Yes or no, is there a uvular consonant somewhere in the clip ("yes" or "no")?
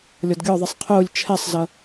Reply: yes